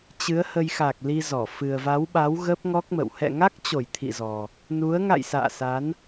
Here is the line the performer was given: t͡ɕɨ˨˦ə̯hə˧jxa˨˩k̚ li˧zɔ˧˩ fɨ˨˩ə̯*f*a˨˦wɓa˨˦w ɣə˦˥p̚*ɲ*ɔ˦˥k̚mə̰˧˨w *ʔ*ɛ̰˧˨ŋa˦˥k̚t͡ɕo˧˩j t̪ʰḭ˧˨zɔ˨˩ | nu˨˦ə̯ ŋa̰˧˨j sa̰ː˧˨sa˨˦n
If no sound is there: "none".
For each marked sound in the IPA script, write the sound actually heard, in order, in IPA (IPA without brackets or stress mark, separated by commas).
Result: v, ŋ, h